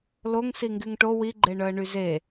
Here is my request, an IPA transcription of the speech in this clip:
l o ŋ s i ŋ ɡ y ŋ ʈ o w i ɡ͡ǃ e ɳ œ ə̯ ɳ y z e

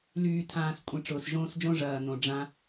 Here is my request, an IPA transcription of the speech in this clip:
l yː˨ tʰ ãː˨ s kʷʼ ĩ˨ ʈ͡ʂ ʊː˨ s ʒ õː˦ s d͡ʒ õ˦ ʐ ɐː˨ n õ˨ ɖ͡ʐ ã˦

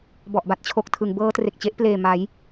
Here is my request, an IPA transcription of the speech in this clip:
b ɔ˨˩ ʔ b a˦˥ t̚ t͡ɕʰ o˨˩ k̚ tʰ ɯ˩˦ ŋ b ɤː˦˥ t r e˨˩ k̚ t͡ɕ e˦˥ ʔ p l eː˨˩ m a˩˦ j

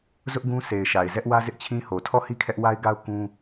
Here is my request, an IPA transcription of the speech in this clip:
z ʊ˦ ʔ ɡ ũ˦ s e˨ ɪ̯ ʃ a˨ ɪ̯ z ɛ˦ ʔ w ä˦ z ɪ˦ ʔ t͡ɕʰ ĩ˦ h o˨ tʰ ɔ˦˨ h i˦ kʰ ɛ˦ ʔ w a˦ ɪ̯ ɡ a˦ ʊ̯ k ũ˦

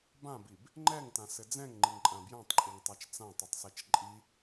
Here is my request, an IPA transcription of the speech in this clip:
b ã b i b | ŋ͡ǃ ɛ ŋ t ã s ɘ d͡z ɛ̃ ŋ ŋ͡ǃ i ŋ ǃʼ ã b j ã tˤ ǃʼ i ŋ tˤ a t͡ʃ t͡s ã tˤ i tˤ s ɛ t͡ʃ ǃʼ i

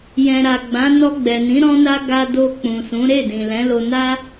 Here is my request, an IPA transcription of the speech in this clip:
j ɛ̃˨ ɾ a˨ ɡ͡b ã˨˦ n ɔ˧ ɡ͡b ɛ˨ n ĩ˨˦ ɾ ɔ̃˦ n a˦ ɡ a˦ d o˧ k͡p ũ˨ s ũ˨˦ ɾ e˦˨ d ĩ˨ l ɛ̃˨˦ l o˧ n a˦

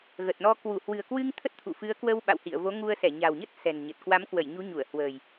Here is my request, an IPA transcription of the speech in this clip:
ɣ ə˨˩ t̚ n ɔ˧ k w u˧˩ h w ɨ̤˨˩ ə̯ k w ɨ˧ ŋ t̪ʰ ə˦˥ t̚ t̪ʰ ṵ˧˨ f ɨ˨˦ ə̯ k w ə˧ w ɓ a̰˧˨ w h ḭ˧˨ ə̯ v o˨˦ ŋ u˧ ə̯ s ɛ˧˩ ɲ a̤˨˩ w ɲ ə˦˥ t̚ s ɛ̤˨˩ n ɲ ə˨˩ t̚ k w a˨˦ m k w ə˧˩ j ɲ u˨˦ ɲ u˧˩ ə̯ h w ə̤˨˩ j

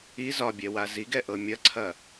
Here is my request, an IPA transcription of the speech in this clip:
i z ɒ bʲ ɛ w a z i ɡ ɛ ʔ ɤ mʲ ɐ ǀʰ ɐ

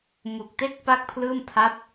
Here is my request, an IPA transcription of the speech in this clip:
m u˨˩ k̚ t e˦˥ k̚ p a˥˩ k̚ pʰ l ɯː˥˩ m pʰ a˦˥ p̚

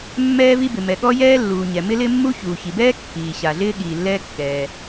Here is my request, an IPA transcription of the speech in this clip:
mː ɛː˥ v i˥ b ɪ˩ m ɛ˩ ɠ ɔ˥ j ɛː˥ lː uː˩ ɲ ɛ˩ m ɪ˥ l ɪ˥ mː u˥ ç uː˩ ç i˩ b ɛː˥ kː iː˩ ɕ a˩ ɮ ɪː˥ ɠ iː˩ lː ɛː˥ kː ɛː˩

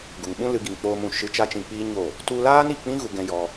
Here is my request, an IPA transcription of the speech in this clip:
ɡ u˨ ŋ ɓ ũ˦ l ɨ˦ ɡ i˧ ŋ k͡p oː˧ m ũ˨ ʃ ɨ˧ t͡ʃ a˦ t͡ʃ ĩ˧ k͡p iː˦ ɲ o˦˨ | t u˧ l aː˦ n i˨ k͡p ĩ˦ ɣ u˧ ɡ ɛ̃˧ j ɔ˧

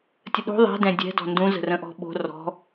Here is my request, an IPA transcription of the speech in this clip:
tʲ ə ɗ o̤ ðˤ ɛ̤ d ɛ̃ dʲ ɛ̤ d ɔ̤ n d ũ z ə̤ r ə̃ ʔ ɔ̤ ɓ o̤ r ɔ̤

